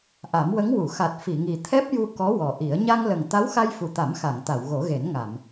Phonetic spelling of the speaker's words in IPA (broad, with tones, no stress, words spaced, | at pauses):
ʔa˨˩˦mwə˧˥ŋwu˨˩˨ xa˨˩t̚fi˨˩˨ŋi˨˩ t̪ʰɛ˦˥p̚ju˧ kɔ˧˥wɔ˨˩ ʔi˨˩˦ə̯ ɲa˧ŋlə˨˩ŋ t̪a˧˥wxa˧jfu˨˩t̪a˨˩˦m xa˨˩˨ŋt̪a˨˩˨wɣo˨˩˦ɣe˨˩˦n ŋa˨˩˨m